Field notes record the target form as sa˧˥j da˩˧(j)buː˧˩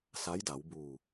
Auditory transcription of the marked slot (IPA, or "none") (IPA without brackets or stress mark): w